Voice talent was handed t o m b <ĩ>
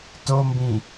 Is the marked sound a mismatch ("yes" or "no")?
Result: no